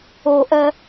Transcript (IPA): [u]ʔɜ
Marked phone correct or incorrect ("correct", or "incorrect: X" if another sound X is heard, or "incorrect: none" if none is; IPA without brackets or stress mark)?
incorrect: o